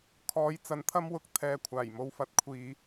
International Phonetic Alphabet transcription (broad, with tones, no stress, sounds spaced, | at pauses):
kʰ ɔː˨˧ j t͡s ɐ˨˥ n t̪ʰ ɐ˥ m w ʊ˨ k̚ t̪ʰ ɛː˧ kʷʰ aː˨˩ j m o˧ w f ɐ˨˥ t̚ kʷʰ iː˨